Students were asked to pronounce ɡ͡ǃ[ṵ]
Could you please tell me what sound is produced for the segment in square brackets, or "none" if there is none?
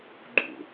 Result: ṵ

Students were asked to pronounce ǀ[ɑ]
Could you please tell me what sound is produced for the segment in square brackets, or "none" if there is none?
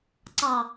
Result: ɑ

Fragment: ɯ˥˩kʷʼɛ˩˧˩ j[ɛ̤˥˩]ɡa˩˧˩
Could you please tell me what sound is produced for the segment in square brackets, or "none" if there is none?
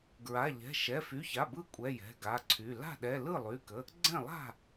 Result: ɛ̤˩˧˩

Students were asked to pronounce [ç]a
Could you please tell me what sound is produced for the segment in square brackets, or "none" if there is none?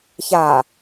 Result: ç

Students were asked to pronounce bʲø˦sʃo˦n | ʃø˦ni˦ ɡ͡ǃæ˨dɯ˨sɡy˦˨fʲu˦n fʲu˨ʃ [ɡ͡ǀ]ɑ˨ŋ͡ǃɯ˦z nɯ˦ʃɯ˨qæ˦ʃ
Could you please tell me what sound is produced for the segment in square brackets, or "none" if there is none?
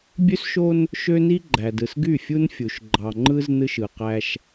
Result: ɡ͡ǃ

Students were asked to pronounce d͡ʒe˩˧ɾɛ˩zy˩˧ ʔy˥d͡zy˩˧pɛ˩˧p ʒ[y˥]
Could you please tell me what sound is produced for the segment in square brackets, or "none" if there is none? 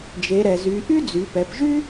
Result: y˥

